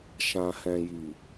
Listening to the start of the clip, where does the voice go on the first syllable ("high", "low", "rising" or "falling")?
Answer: low